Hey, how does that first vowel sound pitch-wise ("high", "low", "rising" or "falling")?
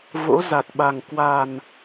rising